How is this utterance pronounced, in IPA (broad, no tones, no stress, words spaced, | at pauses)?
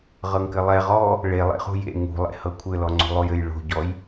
ʁɤŋkɘlˠɛ ʁɔ | ɭelˠḛχṳ jḛ ŋṳlˠḛ hɤkʷʰɘlɔ ŋ͡ǀo̤lˠojɘj ɭo̤ɟɔj